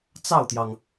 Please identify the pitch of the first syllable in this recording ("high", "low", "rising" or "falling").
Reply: falling